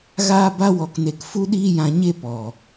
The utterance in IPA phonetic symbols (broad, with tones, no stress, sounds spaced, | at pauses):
ɣ aː˦ b a˦ w ɔ˧ k n e˧ k f u˦ ɗ iː˦ j ã˧ ɲ e˦ p ɔ˨